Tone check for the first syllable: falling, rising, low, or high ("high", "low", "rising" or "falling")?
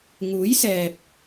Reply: rising